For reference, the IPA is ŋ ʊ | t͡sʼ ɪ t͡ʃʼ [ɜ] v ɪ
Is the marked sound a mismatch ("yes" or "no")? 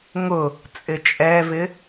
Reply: yes